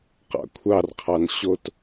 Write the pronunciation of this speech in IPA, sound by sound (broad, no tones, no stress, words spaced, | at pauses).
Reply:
qɑ̰kʷʰɑrqʰɑn ɕot